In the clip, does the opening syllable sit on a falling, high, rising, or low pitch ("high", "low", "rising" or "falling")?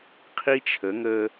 high